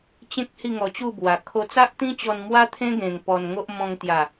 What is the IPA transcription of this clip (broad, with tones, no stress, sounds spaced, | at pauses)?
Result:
t͡ɕ ẽ˦ k̚ h i˥˧ ŋ ɔ˧ t͡ɕ u˥˧ b w a˨˩ kʰ o˧ t͡s a˦ ʔ t̪ ĩ˦ t͡ɕ ɔ˧ n m w a˦ t̪ʰ ẽ˦ ɡ ẽ˧ ŋ p ɔ˧ n ŋ o˦ ʔ m ɔ̃˧ ŋ t̪ j a˨˩